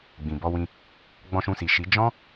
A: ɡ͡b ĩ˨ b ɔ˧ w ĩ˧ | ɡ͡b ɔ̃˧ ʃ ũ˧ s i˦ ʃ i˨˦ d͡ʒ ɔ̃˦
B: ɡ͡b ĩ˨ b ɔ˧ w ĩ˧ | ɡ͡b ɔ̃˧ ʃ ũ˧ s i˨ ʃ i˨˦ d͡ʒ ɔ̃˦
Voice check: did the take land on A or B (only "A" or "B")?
B